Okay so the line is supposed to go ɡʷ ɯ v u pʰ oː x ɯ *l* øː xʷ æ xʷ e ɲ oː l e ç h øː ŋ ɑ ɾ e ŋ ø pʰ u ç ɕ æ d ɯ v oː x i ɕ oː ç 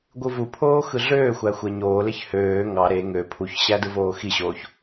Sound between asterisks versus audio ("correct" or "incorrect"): incorrect